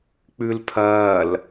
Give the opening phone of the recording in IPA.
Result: k͡p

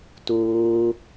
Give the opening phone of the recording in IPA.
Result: t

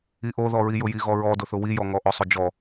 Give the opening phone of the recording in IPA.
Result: i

